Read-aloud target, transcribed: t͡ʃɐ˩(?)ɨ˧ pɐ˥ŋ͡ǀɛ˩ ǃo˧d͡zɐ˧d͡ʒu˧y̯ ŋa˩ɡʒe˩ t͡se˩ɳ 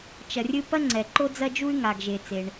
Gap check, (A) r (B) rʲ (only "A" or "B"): B